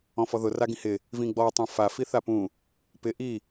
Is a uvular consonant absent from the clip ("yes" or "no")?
yes